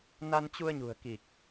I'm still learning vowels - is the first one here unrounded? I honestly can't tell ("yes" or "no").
yes